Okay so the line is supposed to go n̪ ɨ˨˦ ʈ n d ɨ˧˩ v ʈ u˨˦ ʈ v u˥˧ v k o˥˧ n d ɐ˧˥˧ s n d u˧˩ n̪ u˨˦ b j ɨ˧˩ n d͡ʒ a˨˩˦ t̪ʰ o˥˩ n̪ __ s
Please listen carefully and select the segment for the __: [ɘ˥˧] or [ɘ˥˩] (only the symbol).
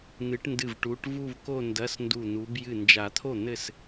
ɘ˥˩